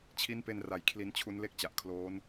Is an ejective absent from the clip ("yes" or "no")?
yes